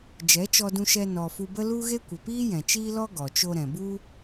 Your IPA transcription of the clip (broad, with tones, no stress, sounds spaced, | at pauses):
d͡ʒ ɛ˨˦ t͡ʃ ɔ˧ d ũ˧ ʃ ɛ˧ n ɔ˨ f u˧ b ə˦ l u˦ ɣ e˦ kʷ ə˨ p iː˦ j ɛ̃˨ t͡ʃ iː˦ l ɔ˦ ɡ ɔ˨ t͡ʃ o˧ ɾ ɛ̃˨ b u˦